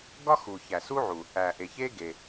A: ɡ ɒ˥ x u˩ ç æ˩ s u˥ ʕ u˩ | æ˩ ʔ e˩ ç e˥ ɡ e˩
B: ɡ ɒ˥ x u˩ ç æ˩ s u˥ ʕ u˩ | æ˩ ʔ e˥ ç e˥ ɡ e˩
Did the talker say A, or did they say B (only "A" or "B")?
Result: A